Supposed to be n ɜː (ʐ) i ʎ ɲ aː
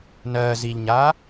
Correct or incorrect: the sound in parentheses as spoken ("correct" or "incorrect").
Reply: incorrect